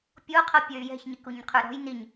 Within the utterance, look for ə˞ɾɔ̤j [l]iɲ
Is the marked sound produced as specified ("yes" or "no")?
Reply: no